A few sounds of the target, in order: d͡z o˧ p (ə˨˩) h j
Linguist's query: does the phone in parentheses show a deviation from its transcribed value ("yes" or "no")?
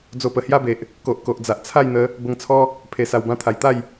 no